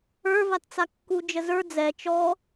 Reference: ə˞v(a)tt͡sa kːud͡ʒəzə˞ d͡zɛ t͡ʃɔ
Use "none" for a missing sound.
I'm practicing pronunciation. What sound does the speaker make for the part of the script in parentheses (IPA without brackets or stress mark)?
a